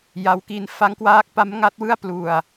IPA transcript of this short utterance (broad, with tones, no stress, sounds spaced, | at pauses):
j a˦˥ w k i˦˥ n f a˦˥ ŋ k w aː˦˥ k̚ p a˦˥ m ŋ a˦˥ t̚ w ɯ˥˩ a̯ p l u˧ a̯